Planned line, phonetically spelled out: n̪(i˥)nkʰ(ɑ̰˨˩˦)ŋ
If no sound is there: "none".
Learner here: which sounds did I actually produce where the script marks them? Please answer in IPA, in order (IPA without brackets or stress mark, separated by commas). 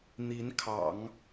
i˧˥, ɑ̰˨˩˦